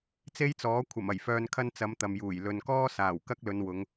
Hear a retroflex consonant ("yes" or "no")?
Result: no